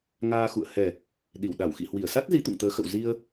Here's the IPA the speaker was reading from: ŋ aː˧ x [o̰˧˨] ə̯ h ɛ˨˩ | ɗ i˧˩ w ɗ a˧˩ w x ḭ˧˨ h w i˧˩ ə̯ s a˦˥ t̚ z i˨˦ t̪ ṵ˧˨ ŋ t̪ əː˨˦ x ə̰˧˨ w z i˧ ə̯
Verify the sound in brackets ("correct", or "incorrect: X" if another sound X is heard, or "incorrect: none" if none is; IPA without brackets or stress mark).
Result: incorrect: ṵ˧˨